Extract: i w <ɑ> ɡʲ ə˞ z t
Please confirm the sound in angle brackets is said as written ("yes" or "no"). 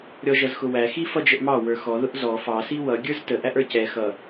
no